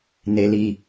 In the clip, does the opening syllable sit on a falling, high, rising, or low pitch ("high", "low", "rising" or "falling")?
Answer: low